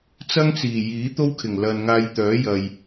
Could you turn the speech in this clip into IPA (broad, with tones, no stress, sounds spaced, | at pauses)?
t͡s ɐ˥ ŋ t͡s iː˨˩ j iː˨˥ t̪ o˥ w kʰ ɪ˨˩ ŋ l ɐ˨ n ŋ aː˧ j t̪ œː˨˥ j ɐ˨ j